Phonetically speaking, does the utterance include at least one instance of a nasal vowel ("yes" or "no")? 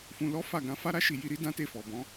yes